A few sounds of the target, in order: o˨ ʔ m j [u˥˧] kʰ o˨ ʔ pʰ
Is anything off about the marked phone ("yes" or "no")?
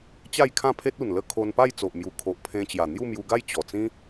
yes